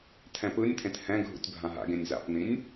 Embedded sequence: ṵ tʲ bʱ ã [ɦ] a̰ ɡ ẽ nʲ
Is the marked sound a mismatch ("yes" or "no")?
no